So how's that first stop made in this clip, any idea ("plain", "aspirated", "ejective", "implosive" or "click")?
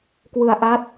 plain